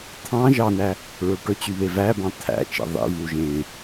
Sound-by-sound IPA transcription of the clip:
t̪ʰ ɑ̃ ʒ ɑ n æ | ɹ ɵ ʈ ɵ t͡ɕ y β e v æ b ɑ̃ t̪ʰ æ̰ t͡ʃ ḛ ðˤ ḭ v u ʒ ẽ

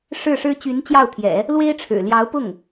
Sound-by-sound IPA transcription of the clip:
ʂ ɻ̩˥˩ ʂ ɻ̩˥ t͡ɕ y˧˥ n t͡ɕ j ɑ˥˩ ʊ̯ t̪ʰ j ɛ̰˨˩˦ | l w e˥ ɪ̯ ʈ͡ʂʰ ɻ̩˨˩ l j ɑ˧˥ ʊ̯ p ʊ˥˩ ŋ

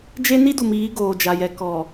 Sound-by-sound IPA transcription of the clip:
d͡ʒ e˦ n i˦ d u˨ m iː˨˦ ɡ oː˨ d͡ʒ a˨ j ɛ˨ k ɔ˨

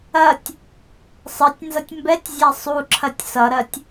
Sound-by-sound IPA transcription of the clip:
ɐ tʲ | sˤ ʌ tʲ n z ʌ tʲ m b ɛ tʲ zʲ a sˤ u ǁʰ ɐ tʲ s ʌ ɾ ɐ tʲ

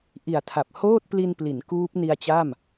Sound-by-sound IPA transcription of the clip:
ʔ i˨˩ a̯ tʰ a˨˩ p̚ h oː˥˩ t̚ p l i˧ n p l i˩˦ n k uː˦˥ p̚ n i˧ a̯ t͡ɕ a˥˩ m

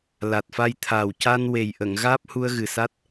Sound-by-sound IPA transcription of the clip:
l a˨˩ t̚ f a˧ j t̪ʰ aː˨˩ w c a˧ n w e˨˩ j ʔ ə˨˩˨ ŋ ɣ aː˦˥ p̚ h u˧ ə̯ ɣ ɨ˨˩ s a˦˥ t̚

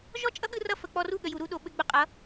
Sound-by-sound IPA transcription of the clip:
ʒ ɔ˦ t͡ʃʼ ʌ˦ ɠ ɯ˧ r ʌ˧ f ə˨ k͡p ɔ˧ r u˦˨ ɠ ə˨ j u˨ ɾ u˦ ɗ o˧ ɓ ɘ˦ ɡ͡b ʊ˧ qʼ ʌ˨˦

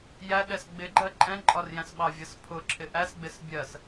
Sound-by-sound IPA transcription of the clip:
j æ ɗ ɛ s ɡ͡b ɪ ɡ͡ǃ ɜ ǃʼ ɛ̃ ǃʼ ɒ r j æ̃ s ɓ ɑ vʲ ʌ s pʰ ʊ ǁʰ ɪ ʔ æ s ɡ͡b ɪ s bʲ ɜ s

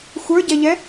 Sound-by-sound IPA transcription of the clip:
xʷ ə˞ ɟ ɛ ʎ ɛ

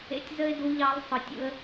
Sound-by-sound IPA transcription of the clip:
ḛ˧ tʲ z ə˥ ɪ̯ d u˧˥ ʎ ɑ˧˥ lˠ sˤ ɯ˩˧ tʲ ṵ˧ ə̯

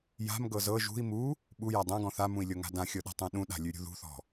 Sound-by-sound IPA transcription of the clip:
j a̤ m ɡ ɤ z ɤ ʒ ṳ i̯ m u | ɓ u j a dˤ ã ɡ ɔ̃ θ a m ũ i̯ lʲ ɤ ŋ a̤ d ã xʲ ɤ ɗ a̤ tˤ ũ ɗ ũ ɗ a̤ lʲ ʉ ɾʲ ṳ ð ṳ θ ɔ̤

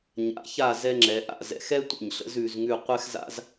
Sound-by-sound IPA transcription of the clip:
ɲ a̰˩˧ ç a˧˩ z ɛ˧ ŋ͡ǁ ɛ˩˧ ʔ a̰˧˩ z ɛ̰˧ x ɛ˥ tʷ ə̰˧˩ ɲ ɬ ə̰˥ z ʉ˩˧ z ŋ ʉ˥˧ qʷ ɛ˥ x z a̰˥ z

